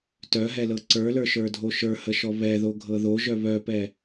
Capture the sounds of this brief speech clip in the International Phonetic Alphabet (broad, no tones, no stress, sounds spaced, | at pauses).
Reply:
t œ ɦ ɛ l ɤ ǀ ə˞ l ə˞ ʃ ə˞ dʱ o ʃ ə˞ h ə ʃ ɔ β ɛ ð o ɡʱ ɤ ð o ʒ œ β œ p ɛ